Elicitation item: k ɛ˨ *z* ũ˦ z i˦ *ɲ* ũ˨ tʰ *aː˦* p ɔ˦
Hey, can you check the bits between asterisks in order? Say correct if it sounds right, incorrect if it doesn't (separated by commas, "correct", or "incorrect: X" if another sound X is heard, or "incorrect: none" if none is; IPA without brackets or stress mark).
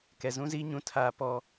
correct, correct, correct